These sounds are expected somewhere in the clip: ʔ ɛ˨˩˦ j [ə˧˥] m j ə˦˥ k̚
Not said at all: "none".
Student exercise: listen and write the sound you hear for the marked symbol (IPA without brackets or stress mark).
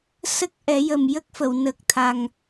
ə˨˩